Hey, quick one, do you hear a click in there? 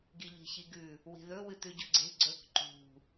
yes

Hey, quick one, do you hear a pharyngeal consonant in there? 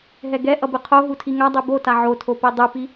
yes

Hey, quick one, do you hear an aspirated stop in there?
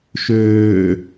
no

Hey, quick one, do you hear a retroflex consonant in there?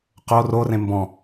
no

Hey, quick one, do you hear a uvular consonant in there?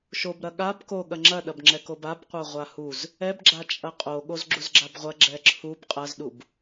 yes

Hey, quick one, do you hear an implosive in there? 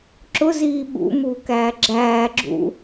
yes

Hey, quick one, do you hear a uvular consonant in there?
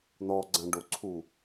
no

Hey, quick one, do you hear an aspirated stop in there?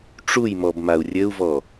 no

